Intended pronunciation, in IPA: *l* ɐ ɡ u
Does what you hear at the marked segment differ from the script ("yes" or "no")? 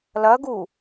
no